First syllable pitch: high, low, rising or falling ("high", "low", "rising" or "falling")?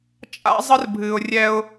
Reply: high